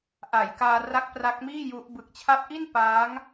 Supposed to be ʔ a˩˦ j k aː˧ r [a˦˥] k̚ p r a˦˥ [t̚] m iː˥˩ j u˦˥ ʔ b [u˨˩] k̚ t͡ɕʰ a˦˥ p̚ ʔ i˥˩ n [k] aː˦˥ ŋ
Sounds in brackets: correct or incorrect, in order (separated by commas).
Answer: correct, incorrect, incorrect, incorrect